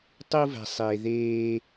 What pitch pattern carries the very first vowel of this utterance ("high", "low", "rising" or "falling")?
high